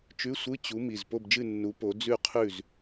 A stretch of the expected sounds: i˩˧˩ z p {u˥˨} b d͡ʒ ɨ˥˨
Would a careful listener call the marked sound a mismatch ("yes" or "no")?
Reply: yes